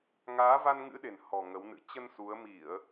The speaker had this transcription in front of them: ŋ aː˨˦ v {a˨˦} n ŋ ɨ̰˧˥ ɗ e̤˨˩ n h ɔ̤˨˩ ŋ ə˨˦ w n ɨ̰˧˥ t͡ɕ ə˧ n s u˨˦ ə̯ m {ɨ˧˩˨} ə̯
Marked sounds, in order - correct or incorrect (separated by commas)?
incorrect, incorrect